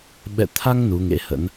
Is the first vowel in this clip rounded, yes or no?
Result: no